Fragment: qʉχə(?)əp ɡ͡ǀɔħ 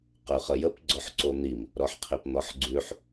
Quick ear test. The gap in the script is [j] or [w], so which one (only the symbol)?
j